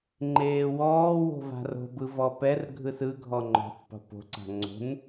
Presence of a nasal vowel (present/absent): absent